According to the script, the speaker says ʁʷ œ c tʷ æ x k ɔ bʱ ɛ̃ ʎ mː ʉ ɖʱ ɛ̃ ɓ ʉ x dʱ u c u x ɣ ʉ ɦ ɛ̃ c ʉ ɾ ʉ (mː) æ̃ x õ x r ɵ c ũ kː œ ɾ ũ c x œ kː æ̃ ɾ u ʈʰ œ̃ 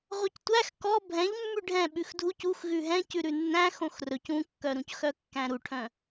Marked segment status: incorrect: nː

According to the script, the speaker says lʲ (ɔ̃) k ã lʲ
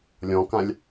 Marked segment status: correct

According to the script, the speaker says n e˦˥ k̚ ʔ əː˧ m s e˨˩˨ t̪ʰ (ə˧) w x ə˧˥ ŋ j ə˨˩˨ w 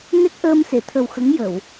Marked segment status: incorrect: ə˨˩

